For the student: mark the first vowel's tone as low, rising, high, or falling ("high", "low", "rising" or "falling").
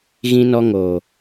high